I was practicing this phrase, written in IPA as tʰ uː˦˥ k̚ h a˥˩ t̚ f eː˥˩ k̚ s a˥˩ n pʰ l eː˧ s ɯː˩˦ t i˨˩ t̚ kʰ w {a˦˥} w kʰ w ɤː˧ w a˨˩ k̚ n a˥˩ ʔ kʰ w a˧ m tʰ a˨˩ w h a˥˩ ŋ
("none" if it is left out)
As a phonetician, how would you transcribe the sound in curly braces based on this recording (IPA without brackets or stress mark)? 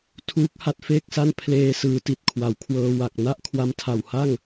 a˩˦